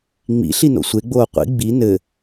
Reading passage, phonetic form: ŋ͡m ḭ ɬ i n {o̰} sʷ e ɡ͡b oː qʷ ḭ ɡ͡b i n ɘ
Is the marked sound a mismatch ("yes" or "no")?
no